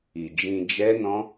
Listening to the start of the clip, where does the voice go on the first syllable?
low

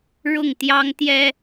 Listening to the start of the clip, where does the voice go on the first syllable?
falling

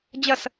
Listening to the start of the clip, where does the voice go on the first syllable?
falling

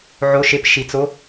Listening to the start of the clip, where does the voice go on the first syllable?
rising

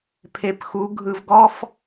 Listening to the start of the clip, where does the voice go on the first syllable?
rising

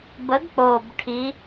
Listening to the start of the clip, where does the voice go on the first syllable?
rising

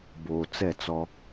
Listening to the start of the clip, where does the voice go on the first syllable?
low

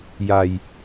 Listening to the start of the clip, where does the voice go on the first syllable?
low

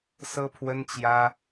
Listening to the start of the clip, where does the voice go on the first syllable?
high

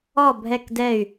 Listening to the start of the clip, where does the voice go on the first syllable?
falling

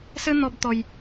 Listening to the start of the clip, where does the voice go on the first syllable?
high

